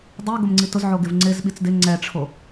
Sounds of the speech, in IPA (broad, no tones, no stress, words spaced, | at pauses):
dˤi ɡʊmŋ͡ǀitʊzʕo ɡɪvŋ͡ǀɪz ɓit͡sdɪ ŋ͡ǀɛʈ͡ʂʰo